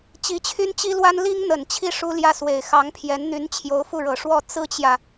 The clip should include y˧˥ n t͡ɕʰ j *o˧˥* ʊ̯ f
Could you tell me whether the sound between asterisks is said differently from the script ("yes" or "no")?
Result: no